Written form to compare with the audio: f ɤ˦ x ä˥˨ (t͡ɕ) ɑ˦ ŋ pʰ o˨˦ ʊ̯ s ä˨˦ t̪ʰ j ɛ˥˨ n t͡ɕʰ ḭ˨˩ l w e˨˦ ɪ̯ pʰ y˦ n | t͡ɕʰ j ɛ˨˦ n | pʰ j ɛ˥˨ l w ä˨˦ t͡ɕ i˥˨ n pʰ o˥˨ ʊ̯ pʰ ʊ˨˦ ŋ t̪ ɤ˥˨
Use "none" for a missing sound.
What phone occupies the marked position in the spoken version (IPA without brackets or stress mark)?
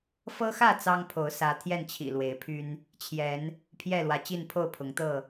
t͡s